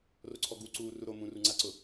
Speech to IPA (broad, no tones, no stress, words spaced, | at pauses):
roǀʰɔɡu ǀuːruɾo mũruŋ͡ǀaǀʊ